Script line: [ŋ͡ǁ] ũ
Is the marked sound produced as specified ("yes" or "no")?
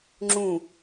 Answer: yes